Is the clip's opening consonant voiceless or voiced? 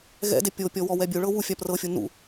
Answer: voiced